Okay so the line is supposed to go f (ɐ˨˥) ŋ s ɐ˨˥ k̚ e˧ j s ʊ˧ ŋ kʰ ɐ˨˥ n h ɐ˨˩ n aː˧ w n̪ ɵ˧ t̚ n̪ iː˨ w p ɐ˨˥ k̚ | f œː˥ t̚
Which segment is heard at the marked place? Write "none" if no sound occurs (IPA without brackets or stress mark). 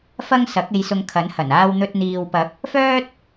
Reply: ɐ˥